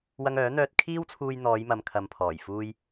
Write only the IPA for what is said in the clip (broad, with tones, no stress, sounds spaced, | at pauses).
w ɐ˧ ŋ œː˨˥ n̪ œː˧ t̚ kʰ iː˥ w t͡sʰ uː˧ j n̪ ɔː˨˧ j m ɐ˨ m kʰ ɐ˨ m pʰ ɔː˨˩ j f uː˧ j